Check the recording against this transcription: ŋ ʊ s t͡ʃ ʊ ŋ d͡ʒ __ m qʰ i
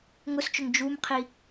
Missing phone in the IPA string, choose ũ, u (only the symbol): u